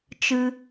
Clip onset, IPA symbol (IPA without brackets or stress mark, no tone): t͡ʃ